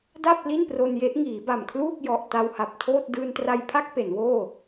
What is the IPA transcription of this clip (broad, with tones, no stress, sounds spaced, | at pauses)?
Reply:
d a˥˩ p̚ l i˥˩ n p r o˧ n j e˦˥ ʔ ŋ iː˩˦ b a˨˩ m kʰ l uː˥˩ k̚ j ɔ˨˩ ʔ t a˧ w h a˨˩ p̚ tʰ oː˥˩ t̚ d ɯː˧ n t r a˧ j pʰ a˥˩ k̚ p e˩˦ n w oː˥˩